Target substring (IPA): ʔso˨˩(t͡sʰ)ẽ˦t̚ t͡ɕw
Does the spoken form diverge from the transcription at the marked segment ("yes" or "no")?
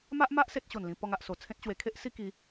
no